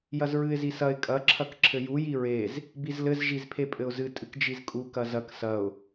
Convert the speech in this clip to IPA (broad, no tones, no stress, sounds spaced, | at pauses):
j ɐ z ɹ ɨ ɪ̯ z i s ɐ ɪ̯ kʼ ɐ ǁʰ ɐ k ǁʰ ɘ j u j i ɹ e z | b i z l ɘ z ʒ i z pʰ e pʼ ɘ ʊ̯ z ɨ tʼ ɨ k d͡ʒ i z kʼ u k ɐ z ɐ k s ɐ ʊ̯